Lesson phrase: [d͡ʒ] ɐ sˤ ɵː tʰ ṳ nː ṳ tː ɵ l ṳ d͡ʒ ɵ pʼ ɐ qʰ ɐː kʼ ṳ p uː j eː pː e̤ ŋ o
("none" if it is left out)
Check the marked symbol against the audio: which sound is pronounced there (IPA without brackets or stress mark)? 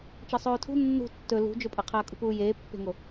t͡ʃ